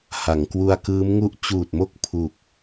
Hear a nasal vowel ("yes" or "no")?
no